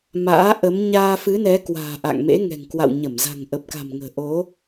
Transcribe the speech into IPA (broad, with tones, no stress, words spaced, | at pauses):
ma̰ː˧˥ʔə˨˦m ɲaː˧fɨ˨˦nɛ˨˦ kwa̤ː˨˩ʔa̰˧˨ŋmḛ˧˥ ŋɛ̤˨˩ŋkwa̰˧˨wɲə˧˩m za̤˨˩ŋʔə˨˩p̚ka̤˨˩mŋə̤ː˨˩ ʔo˨˦